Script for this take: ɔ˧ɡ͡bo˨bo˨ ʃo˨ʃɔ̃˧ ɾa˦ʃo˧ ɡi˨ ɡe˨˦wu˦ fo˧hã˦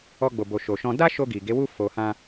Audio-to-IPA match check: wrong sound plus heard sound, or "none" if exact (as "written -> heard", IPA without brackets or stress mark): ɾ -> d